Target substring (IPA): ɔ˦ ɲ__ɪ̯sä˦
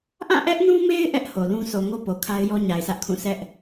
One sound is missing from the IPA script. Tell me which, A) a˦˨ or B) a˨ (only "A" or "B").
B